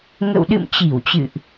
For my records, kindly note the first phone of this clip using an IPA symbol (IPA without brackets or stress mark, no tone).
ŋ